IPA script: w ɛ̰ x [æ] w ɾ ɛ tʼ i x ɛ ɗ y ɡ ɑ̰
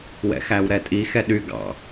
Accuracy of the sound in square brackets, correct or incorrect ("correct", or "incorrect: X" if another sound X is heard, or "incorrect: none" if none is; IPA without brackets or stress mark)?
correct